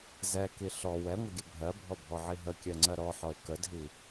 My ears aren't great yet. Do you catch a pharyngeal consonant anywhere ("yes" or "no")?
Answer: yes